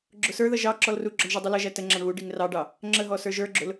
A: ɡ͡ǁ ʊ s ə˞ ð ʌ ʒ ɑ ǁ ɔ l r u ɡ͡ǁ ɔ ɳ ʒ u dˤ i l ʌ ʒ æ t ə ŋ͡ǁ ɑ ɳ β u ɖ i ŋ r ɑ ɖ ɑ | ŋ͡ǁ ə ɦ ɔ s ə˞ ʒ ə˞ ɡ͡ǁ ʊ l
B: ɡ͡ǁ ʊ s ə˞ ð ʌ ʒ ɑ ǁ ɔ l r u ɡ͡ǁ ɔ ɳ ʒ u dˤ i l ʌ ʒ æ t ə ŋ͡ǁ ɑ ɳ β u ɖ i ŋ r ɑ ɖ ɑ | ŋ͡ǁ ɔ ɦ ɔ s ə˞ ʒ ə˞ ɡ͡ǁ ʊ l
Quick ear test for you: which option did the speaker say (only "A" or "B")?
A